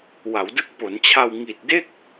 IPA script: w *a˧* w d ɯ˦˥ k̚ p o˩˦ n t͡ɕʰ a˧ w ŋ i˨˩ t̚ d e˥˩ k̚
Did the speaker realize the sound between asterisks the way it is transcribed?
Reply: no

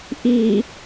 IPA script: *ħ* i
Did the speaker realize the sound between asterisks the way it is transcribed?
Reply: no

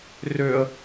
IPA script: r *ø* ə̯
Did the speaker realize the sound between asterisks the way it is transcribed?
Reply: yes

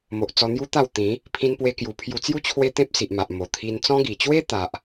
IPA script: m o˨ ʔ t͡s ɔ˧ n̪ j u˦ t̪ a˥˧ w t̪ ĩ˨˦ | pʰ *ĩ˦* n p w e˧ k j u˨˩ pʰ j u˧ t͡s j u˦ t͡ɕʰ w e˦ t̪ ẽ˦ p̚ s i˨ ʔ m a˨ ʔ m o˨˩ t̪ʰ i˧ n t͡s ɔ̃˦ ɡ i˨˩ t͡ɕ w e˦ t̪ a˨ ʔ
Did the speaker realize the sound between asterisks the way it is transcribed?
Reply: no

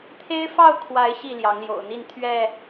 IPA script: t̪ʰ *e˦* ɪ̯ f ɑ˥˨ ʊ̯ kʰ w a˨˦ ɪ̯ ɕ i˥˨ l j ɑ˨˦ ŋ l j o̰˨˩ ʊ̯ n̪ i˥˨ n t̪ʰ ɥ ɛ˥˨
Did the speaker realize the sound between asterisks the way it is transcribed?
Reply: yes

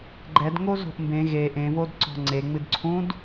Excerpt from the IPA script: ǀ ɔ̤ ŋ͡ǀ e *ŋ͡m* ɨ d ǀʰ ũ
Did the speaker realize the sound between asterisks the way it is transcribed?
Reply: yes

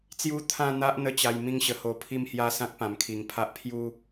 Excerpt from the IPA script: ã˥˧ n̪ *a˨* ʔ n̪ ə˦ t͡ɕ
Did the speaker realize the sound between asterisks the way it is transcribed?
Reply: no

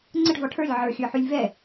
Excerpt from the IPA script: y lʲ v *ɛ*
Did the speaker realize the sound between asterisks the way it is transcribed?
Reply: yes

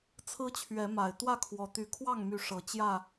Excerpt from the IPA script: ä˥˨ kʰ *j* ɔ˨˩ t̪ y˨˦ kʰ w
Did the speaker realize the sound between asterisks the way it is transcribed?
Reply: no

